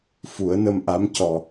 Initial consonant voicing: voiceless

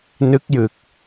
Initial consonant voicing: voiced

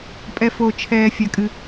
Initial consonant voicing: voiceless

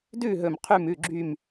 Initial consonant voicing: voiced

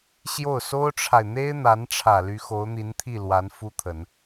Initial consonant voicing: voiceless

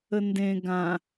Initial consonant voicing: voiced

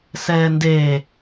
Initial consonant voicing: voiceless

